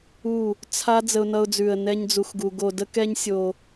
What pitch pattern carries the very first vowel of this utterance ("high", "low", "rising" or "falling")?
falling